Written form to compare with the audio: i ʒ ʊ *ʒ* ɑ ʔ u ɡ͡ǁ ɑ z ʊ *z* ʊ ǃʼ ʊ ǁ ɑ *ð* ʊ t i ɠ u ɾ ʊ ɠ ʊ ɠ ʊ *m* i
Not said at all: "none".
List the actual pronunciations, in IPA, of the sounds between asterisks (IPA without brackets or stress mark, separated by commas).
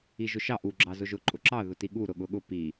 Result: ʃ, ʒ, ð, p